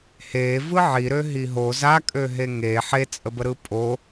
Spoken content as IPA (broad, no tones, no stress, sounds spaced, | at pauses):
h e v ɯ ʕ i ɾ ø ɦ i ɦ o z a kʼ ø ɦ e ŋ e ħ e t͡sʼ ə b ə ɾ ɯ pʼ o